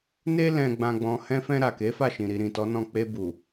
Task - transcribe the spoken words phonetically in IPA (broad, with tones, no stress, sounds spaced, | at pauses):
n e˧ l ɛ̃˨ ɡ͡b ã˨ ɡ͡b ɔ̃˨ h ɛ̃˧ f ɛ̃˧ ɾ a˨ k e˨˦ f a˦˨ ʃ ĩ˨ ɾ i˨ ɾ ĩ˨ t ɔ˨˦ n ɔ̃˦˨ k͡p e˧ b u˨